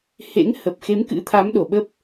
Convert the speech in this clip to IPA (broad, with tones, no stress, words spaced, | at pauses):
hḛ˧˥ŋhə˨˩p̚ xe˨˦mkɨ̰˧˥t̪ʰa˨˦m ɗo˨˩ɓə˦˥p̚